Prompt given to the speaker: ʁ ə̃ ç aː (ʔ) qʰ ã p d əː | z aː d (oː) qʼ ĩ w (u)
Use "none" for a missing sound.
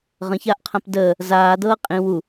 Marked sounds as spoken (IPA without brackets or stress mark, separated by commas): ʔ, ɤː, u